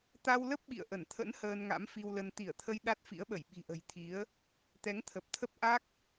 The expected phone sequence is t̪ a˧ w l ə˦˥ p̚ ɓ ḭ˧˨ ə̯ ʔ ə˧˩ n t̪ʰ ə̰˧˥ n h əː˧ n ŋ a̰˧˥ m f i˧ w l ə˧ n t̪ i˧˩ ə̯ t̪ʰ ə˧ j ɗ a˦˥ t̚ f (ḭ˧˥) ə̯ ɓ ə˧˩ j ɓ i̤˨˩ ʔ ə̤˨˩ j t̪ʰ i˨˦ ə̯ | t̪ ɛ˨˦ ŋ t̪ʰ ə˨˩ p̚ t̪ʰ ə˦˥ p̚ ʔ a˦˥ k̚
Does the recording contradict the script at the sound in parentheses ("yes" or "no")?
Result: no